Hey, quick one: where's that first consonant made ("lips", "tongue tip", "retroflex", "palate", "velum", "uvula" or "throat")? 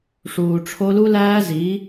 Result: retroflex